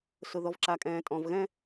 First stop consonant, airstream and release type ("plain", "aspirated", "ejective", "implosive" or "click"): click